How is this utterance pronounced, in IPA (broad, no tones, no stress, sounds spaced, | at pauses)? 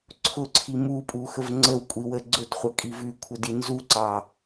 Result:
ǀʰ ʊ ǀʰ i m u pʼ u x ə v ŋ͡ǀ ə w kʷʼ i w ə ɡ͡ǀ ʊ d χʷ ɑ kʼ i v ʉ kʷʰ ə d i n z u ǀ ɑ